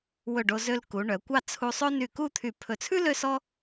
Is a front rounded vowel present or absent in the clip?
present